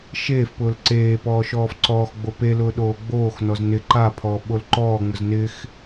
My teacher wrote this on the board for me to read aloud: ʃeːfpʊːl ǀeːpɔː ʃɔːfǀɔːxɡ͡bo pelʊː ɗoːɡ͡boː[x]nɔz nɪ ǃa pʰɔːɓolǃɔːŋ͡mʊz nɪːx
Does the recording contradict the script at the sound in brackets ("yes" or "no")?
no